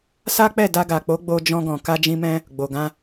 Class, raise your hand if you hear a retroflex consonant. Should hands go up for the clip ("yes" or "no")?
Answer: no